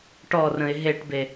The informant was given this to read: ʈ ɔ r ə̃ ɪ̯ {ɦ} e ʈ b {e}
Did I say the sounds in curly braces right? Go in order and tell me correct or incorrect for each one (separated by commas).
correct, correct